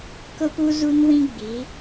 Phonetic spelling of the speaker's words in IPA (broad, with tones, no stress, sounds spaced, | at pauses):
k ʊ˦ p u˦ z u˦ n w ĩ˦ ɡ͡b i˨˦